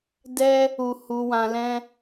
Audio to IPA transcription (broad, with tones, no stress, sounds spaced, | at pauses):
d ɛ˦ | u˨ h u˨ w ã˧ l ɛ̃˦